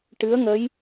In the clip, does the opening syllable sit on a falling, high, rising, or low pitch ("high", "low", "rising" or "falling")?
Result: rising